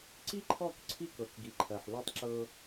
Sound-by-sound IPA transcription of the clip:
ǀ i˦ ǃʰ ɔ˦˨ k ǀʰ i˦ k ɤ˨ k ɡ i˨ ǃʰ ɜ˨ ħ l ø˦ tˤ ǁ ɤ˦

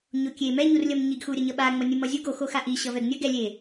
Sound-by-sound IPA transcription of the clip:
ɲ o kʲ e m ɛ ɲ u r lʲ ʌ m ɲ i ɡ x u ɾʲ ʌ ɲ ʌ ɓ a ŋ͡m ʌ nʲ ɯ m ʌ zʲ u ɡ o x o x a ʔ i ɕ ʌ v ɛ ɡ nʲ ʌ ɡ ɛ lʲ e

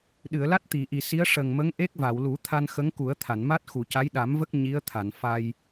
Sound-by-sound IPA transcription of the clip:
ɗ ɨ˨˩˨ ə̯ l a˦˥ t̚ t̪ i˨˩˨ ʔ i˨˩ s i˧˥ ə̯ ʂ ə˨˩ ŋ m ə˧˥ ŋ ʔ e˦˥ k̚ v a˨˩˨ w l u˨˩˦ t̪ʰ a˧ n x ə˧˥ ŋ k u˨˩˦ ə̯ t̪ʰ a˨˩˨ n m a˦˥ t̚ x u˨˩˨ c a˧˥ j ɗ a˨˩˦ m v ə˦˥ k̚ ɲ i˧˥ ə̯ t̪ʰ a˨˩˨ n f a˧ j

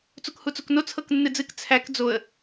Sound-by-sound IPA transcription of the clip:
t͡s u k h u t͡s u k n o t͡sʰ ɤ k nː ɨ d͡z ɨ k t͡sʰ æ k d͡z o ə̯

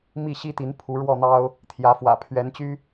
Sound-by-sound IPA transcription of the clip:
m i˥˨ ɕ i˦ t̪ i˨˦ n pʰ u˨˦ ɻ w ɔ˥˨ n̪ ɑ˦ ʊ̯ | t̪ʰ j ä˨˦ f w ä̰˨˩ pʰ ɥ ɛ˨˦ n t͡ɕ y˦

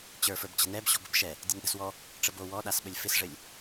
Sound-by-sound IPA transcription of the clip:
t͡ɕ ə˞ f ə˞ b t͡ɕ ə̤ n ɛ b ɕ ɔ̤ b ə̤ b ʃ ɛ | dʲ ɘ n ɗ ə̤ s w ɔ | ʈ͡ʂ ə b o w ɔ ɗ a s ɓ ə lʲ f ɪ s ʐ ɘ lʲ

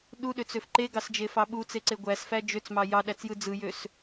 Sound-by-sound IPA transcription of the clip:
ɗ u ɗ ø t͡s ø f ǃ e ɡ ɑ s d͡ʒ e f ɑ ɓ u t͡s e ǀ e ɡʷ æ s f æ d͡ʒ ø t͡s m ɑ j ɑ ɗ æ t͡s j ɯ d͡z ɯ j ø s

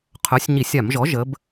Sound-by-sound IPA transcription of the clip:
qʰ œ˩˥ sʲ ɲ i˧˩˧ sʲ a˧˩˧ m ʒ ɔ˩˥ ʒ ə˩˧ b

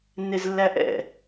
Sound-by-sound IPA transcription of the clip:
nː e z lː æ ʔ ɛ̰

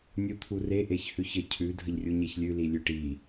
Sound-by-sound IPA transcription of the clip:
nʲ u t̪ʰ u r e ʔ e ç h ʉ ç ə cʰ ʉ dʱ ə ʎ rʲ u ɲ e ç lʲ ʉ l i lʲ ʉ ʈ i

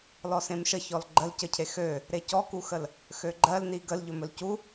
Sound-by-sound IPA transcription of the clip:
l ɔ s ẽ m ʃ ə ç ɔ l ɡ͡ǃ ə l c ə cʰ e x ø | ɾ e c ɔ k u x ə l | x ø ɡ͡ǃ ɜ l n i ɡ ə l ʎ ɵ m ɵ l c u

